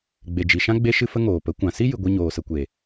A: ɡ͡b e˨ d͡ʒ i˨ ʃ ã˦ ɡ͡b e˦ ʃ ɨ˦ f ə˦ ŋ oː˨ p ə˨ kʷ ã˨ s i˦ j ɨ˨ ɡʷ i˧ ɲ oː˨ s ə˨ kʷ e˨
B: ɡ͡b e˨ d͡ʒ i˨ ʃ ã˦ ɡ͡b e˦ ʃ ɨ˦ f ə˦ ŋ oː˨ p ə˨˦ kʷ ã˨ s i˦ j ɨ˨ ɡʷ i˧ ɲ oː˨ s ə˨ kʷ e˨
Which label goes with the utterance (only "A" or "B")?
B